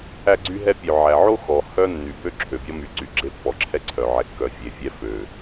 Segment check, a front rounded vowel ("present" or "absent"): present